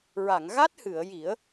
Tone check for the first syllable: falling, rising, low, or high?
low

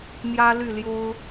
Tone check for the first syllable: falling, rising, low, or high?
high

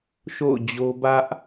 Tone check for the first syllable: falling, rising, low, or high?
falling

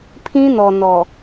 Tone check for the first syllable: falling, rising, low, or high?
high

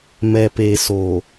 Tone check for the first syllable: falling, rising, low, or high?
low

